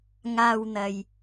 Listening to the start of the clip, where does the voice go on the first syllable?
low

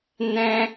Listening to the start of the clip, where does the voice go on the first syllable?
high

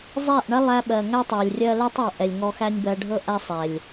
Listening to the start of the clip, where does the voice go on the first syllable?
falling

